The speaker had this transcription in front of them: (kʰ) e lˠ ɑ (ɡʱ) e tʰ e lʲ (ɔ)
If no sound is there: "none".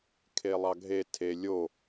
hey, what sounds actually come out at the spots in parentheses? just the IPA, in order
kʰ, ɡʱ, o

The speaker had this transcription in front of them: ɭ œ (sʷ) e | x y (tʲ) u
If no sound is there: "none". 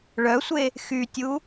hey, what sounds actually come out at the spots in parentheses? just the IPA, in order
sʷ, tʲ

